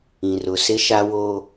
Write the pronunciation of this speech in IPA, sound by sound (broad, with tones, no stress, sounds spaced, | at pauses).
ĩ˨ r ʊ˨ s ɪ˦ ʃ a˦ w o˦